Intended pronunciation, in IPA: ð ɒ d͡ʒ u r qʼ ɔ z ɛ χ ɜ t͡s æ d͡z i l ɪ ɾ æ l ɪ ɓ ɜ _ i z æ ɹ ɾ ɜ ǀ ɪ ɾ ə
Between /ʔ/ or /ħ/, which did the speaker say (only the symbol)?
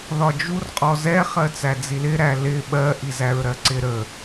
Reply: ʔ